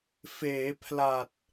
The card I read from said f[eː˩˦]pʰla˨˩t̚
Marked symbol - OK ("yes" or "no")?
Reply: yes